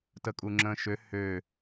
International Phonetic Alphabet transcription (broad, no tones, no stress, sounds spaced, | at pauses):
t ə kʼ u ŋ͡ǁ ə̃ː ʃ ø h øː